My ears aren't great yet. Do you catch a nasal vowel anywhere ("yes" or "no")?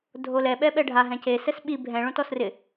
yes